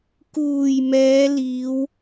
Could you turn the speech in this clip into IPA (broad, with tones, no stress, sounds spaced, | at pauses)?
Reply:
k uː˨˩ j m ɛː˨˧ l iː˨˧ w